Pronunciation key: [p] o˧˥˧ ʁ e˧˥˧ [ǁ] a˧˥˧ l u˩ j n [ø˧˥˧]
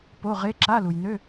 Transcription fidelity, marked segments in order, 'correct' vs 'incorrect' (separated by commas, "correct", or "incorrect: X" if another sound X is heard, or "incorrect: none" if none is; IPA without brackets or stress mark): correct, correct, correct